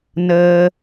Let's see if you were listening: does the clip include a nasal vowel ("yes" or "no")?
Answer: no